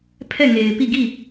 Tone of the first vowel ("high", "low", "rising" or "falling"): falling